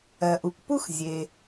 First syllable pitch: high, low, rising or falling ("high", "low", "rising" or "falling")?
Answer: low